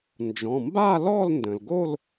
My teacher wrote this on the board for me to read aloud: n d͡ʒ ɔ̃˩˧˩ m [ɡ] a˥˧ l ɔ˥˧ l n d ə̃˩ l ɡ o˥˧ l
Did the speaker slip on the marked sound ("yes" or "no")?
yes